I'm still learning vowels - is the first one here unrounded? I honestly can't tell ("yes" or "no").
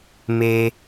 yes